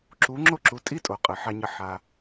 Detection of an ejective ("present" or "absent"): present